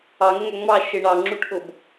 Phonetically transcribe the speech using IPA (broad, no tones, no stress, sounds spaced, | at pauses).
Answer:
ɑ ŋ ə ŋ æ ŋ͡m ɑ ʃ ɪ ɳ ɑ ŋ͡ǁ u ʈ ʔ ʊ b